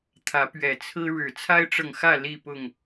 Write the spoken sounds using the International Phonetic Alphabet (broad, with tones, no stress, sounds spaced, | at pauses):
t̪ʰ ä˨˦ p ɥ ɛ˨˩ t͡sʰ ɹ̩˦ ɻ ɻ̩˨˩ t͡sʰ a˦ ɪ̯ ʈ͡ʂ ɤ˨ ŋ x ä˥˨ l i˥˨ p ʊ˥˨ ŋ